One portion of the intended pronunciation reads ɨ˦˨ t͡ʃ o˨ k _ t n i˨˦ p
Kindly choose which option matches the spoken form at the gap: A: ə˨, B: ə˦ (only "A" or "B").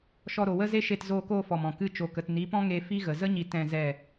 A